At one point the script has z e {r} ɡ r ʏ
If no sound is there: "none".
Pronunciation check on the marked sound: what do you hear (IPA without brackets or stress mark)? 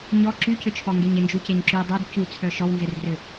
r